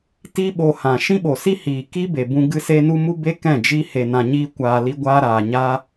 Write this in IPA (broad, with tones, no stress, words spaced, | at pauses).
ti˦ɓo˧hã˨ ʃĩ˦ɓo˨si˦hiː˨ ki˦be˨bũ˧ ɡɨ˧se˧nu˧ mu˦be˦kɛ̃˦˨ d͡ʒi˧he˨nã˨ ɲiː˧kʷaː˨li˧ɡʷaː˧ ɾaː˨ɲaː˦